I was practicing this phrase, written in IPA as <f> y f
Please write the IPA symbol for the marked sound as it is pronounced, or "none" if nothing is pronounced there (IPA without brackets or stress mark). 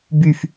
b